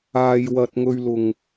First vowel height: low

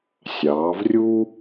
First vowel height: low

